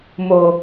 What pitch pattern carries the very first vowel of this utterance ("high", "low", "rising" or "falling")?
low